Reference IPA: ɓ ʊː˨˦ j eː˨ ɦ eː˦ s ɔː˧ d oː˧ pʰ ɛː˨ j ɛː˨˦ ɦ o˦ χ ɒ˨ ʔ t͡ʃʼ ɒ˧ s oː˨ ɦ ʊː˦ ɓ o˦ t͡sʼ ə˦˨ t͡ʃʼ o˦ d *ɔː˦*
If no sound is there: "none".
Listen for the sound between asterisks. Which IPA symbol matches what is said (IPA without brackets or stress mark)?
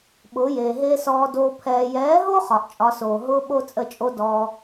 ɔː˧